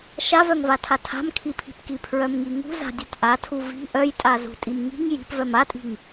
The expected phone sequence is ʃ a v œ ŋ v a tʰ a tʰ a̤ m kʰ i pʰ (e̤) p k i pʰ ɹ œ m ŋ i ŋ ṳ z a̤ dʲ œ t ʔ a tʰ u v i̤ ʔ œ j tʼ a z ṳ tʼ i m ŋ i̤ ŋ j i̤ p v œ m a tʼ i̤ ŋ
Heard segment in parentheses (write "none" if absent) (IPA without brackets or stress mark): i̤